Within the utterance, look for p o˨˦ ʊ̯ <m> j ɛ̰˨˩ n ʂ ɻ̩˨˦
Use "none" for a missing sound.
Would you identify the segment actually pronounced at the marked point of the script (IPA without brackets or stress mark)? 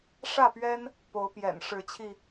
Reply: p